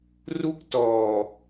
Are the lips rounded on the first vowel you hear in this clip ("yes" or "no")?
yes